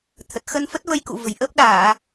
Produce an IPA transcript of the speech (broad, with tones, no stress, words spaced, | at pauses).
t̪ʰə˨˩t̚ xə˧nfə˦˥t̚və˧jkṵ˧˨ və̤˨˩jʔəː˦˥p̚ ɗaː˧˩˨